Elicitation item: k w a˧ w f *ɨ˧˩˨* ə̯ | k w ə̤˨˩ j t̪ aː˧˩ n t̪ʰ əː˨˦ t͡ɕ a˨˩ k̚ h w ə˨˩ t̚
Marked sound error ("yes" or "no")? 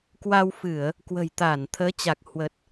no